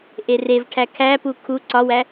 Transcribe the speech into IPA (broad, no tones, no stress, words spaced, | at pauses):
ʔerevʈʰæ kʰæpu kʰu ǀɒwæ